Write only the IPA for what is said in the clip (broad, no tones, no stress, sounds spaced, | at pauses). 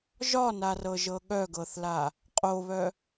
ʒ ɒ n a r ɤ ʒ ɤ ɠ œ ɡ ɤ θ l a | qʼ o β œ